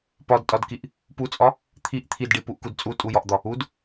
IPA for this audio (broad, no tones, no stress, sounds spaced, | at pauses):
p ɒ d tʼ ɒ d k i ʔ | p u t͡sʼ ɒ | t̪ʰ i ʔ t̪ʰ i d ɖ i p u ʔ k u d t͡sʼ u tʼ u j ɒ ʔ d̪ ɒ | u d